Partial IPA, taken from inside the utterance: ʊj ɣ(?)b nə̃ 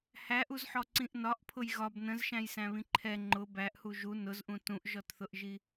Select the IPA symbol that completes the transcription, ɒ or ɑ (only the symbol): ɒ